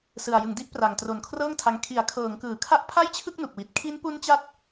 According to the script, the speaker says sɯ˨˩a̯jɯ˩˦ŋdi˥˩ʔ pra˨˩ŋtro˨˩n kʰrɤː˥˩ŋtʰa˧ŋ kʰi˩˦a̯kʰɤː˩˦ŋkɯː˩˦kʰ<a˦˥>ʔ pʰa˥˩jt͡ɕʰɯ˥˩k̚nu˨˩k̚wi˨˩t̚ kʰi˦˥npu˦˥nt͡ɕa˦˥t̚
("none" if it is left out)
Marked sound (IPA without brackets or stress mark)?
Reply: a˦˥